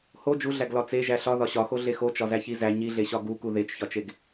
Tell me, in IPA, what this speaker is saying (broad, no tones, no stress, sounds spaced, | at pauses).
h o d͡ʒ u ɮ æ ɡ l ɒ t͡s e ʒ æ ɬ ɒ ð ɒ ɕ ɒ x o ɮ e x o t͡ʃ ɒ z æ ç i z æ ɲ i ɮ e ɕ ɒ ɡ u k u ð e t͡ʃ ç ɒ t͡ʃ e ɡ